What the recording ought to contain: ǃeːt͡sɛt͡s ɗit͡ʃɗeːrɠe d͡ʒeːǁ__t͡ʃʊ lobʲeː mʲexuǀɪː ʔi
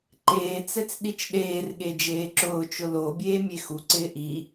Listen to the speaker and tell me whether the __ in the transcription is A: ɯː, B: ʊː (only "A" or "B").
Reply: B